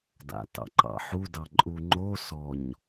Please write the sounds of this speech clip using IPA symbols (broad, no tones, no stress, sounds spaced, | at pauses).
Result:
d a̰ t ɑ̰ ǃ ɑ̰ ħ u d ɑ ǃʼ u ŋ͡ǃ o s ɔ ɲ